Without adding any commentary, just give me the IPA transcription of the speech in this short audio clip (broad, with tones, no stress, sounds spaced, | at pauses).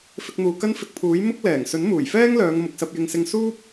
f ɪ˧ k̚ n̪ uː˨ k ɐ˥ n f ɪ˧ k̚ pʰ uː˨˥ j m ʊ˥ k̚ l ɛː˨˩ ŋ s ɵ˨˥ n m uː˨˩ j f ɛː˥ ŋ l œː˨˧ ŋ m ʊ˨ k̚ s ɐ˧ p̚ j ɪ˧ ŋ s ɪ˧ ŋ s uː˥ p̚